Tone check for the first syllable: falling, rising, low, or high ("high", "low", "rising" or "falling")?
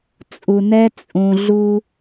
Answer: low